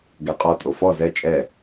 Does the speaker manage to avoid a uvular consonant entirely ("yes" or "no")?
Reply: no